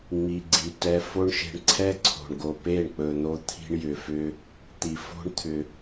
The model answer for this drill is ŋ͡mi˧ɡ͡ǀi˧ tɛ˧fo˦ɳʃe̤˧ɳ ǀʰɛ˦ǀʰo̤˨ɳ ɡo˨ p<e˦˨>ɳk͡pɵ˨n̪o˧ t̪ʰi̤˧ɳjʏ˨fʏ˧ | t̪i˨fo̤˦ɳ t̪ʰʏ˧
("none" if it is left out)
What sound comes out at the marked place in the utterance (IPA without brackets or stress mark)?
e˦˨